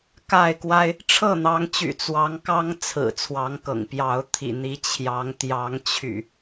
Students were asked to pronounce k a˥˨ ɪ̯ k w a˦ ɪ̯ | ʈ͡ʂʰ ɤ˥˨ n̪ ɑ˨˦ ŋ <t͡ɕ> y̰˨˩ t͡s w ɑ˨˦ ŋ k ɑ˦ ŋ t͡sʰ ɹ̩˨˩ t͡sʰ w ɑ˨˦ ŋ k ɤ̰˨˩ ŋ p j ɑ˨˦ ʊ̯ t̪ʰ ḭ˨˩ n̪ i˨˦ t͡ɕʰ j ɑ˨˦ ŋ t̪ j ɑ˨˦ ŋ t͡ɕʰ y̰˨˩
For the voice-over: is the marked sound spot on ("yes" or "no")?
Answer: yes